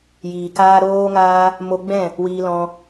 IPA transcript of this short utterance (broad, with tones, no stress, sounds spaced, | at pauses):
j iː˨ k aː˦ ɾ oː˦ ŋ aː˦ | m o˧ ɡ͡b ɛ̃˦˨ | w iː˧ l ɔ̃˧